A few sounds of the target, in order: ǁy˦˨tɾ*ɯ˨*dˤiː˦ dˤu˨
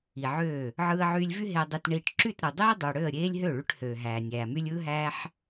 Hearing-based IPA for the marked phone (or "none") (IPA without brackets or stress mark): ɯ˨